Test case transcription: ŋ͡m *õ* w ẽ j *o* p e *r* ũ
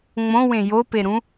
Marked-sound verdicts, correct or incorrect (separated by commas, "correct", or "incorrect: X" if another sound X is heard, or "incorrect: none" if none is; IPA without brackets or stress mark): correct, correct, incorrect: ɾ